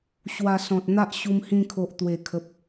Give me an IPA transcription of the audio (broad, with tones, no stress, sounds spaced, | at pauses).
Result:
ɕ w a˧ s ɔ̃˨ t̚ n̪ a˦ ʔ ɕ u˧ m h ĩ˧ kʰ o˨ ʔ t̪ w e˨˩ kʰ ə˨ p̚